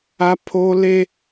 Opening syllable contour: high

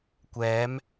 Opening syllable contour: rising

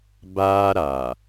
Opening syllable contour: high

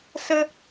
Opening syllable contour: high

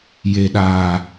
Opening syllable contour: low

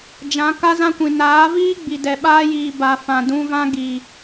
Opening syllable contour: rising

